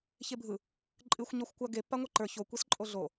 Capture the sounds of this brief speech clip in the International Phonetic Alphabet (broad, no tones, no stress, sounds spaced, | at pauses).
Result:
ç e bʱ ɯ | ǃʼ ɨ xʷ ɲ ɔ xʷ kʷ a ɡ e pː a ŋʷ e ǃ ə˞ ç o kʷ e s ǃʼ o ɮ o